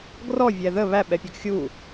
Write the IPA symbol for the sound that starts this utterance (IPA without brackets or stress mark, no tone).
ɡ